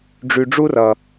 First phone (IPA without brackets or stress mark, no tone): ɖ͡ʐ